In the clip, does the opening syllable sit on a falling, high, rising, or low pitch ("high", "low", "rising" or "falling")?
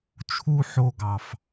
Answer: high